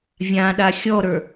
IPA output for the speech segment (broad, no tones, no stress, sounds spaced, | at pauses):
vʲ ã ɗ a xʲ ɔ ɾ ə˞